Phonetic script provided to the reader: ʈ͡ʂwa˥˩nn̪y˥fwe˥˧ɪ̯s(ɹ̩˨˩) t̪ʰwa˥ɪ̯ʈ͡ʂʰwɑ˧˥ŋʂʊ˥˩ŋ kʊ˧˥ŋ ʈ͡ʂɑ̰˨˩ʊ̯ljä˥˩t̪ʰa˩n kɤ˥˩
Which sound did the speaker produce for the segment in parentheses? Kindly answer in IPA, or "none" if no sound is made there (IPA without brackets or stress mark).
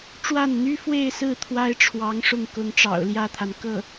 ɹ̩˥˩